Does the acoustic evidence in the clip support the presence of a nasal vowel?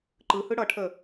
no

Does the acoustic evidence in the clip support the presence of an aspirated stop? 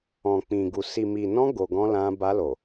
no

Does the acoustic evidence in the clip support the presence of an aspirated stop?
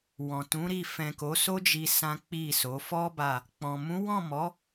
no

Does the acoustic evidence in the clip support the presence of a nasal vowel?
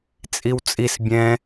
yes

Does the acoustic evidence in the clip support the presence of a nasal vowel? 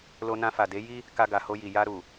yes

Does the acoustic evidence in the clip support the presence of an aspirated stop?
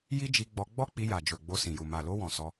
no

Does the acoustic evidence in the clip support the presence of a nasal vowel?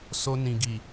yes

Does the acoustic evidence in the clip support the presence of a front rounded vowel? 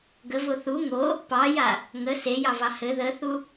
no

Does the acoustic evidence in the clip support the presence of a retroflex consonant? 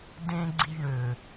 yes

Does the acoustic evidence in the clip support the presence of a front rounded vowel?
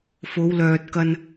yes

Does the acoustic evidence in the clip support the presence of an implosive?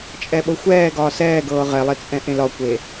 yes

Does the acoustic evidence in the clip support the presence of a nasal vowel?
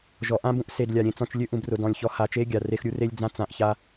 yes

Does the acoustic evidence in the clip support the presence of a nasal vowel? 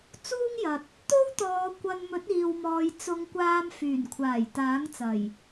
no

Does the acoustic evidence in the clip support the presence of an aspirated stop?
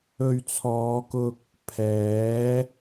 yes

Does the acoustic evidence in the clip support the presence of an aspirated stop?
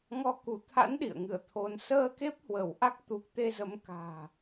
yes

